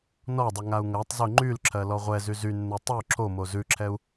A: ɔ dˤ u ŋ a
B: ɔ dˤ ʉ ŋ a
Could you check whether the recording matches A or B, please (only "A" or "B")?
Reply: A